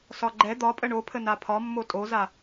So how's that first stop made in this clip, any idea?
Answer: click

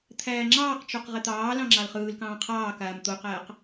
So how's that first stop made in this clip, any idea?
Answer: aspirated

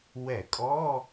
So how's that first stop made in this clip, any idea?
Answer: ejective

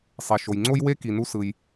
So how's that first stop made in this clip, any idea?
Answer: click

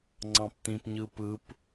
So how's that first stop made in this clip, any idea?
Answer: click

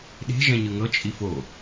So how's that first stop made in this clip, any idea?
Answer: implosive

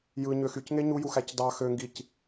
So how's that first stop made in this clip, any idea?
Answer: plain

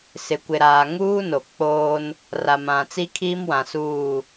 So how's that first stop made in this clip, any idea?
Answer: plain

